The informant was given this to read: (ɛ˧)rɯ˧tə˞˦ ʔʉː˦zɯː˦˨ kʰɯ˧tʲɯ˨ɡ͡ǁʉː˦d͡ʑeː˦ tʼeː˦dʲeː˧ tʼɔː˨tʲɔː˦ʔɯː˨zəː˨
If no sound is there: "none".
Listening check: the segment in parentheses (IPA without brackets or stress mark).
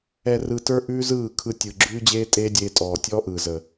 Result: ɛ˧